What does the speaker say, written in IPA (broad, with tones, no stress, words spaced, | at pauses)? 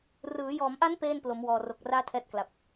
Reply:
rɯː˩˦jɔː˩˦mʔa˦˥n peː˥˩nplo˩˦m wɔː˨˩ro˨˩k̚raː˥˩ tʰɛː˥˩t̚kla˨˩p̚